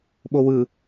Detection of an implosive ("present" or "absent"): present